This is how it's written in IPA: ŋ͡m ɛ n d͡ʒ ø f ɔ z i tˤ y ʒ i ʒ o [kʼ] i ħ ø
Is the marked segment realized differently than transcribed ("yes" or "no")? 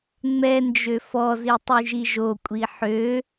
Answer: yes